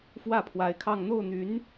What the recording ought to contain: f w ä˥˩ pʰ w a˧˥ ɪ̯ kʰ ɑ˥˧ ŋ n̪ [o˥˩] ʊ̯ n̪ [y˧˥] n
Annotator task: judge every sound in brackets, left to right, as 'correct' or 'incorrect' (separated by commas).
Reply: correct, correct